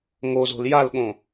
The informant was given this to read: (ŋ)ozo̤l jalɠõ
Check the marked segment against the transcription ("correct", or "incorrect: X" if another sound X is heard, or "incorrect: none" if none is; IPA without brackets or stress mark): correct